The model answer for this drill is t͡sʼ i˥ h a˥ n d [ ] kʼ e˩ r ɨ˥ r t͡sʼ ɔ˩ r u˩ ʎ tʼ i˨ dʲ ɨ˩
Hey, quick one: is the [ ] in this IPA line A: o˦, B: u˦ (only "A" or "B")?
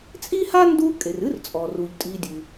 B